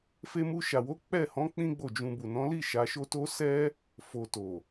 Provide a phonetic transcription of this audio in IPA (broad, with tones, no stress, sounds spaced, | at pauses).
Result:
f e˧ m u˧ ʃ a˨ w o˨˦ k͡p ɛ˦˨ h ɔ̃˨˦ k͡p ĩ˦ ɡ͡b o˦˨ d͡ʒ ũ˧ b u˨ n ɔ̃˨˦ l i˦˨ ʃ a˨˦ ʃ o˦ t o˦ s ɛ˦ | f o˨ t o˨